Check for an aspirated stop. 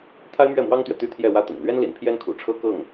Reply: present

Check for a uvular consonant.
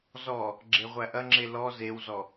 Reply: present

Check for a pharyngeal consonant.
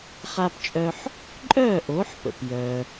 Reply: present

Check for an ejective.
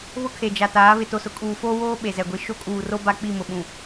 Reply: present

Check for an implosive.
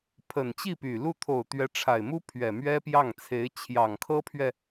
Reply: absent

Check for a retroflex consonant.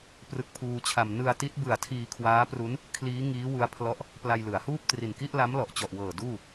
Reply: absent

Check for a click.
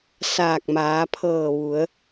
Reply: absent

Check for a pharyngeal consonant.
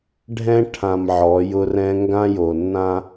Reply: present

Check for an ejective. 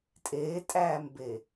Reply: present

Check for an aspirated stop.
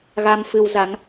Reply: absent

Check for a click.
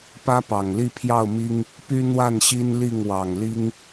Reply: absent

